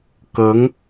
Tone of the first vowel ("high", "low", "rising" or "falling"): rising